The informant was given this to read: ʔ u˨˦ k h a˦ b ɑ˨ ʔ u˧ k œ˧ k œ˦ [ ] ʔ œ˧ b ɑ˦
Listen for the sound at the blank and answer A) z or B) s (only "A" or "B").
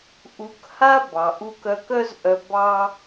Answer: A